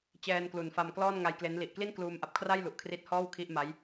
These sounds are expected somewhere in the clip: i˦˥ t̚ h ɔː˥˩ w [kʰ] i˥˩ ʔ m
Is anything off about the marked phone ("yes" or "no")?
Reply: no